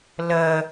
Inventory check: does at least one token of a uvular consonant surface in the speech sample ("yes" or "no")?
no